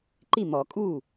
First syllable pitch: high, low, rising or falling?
falling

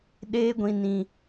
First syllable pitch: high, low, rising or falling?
high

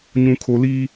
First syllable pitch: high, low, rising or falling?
low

